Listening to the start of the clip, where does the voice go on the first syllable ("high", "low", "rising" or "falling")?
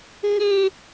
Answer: high